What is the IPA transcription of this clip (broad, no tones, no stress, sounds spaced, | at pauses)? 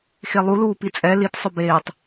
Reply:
x e lˠ u l uː p i t͡sʼ ɛ l i t sˤ ɵ b eː tˤ